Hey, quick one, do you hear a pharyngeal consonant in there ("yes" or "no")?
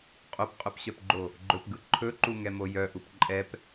no